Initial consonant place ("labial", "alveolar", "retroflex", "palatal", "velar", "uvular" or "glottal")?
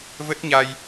labial